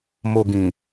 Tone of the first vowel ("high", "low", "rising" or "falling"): low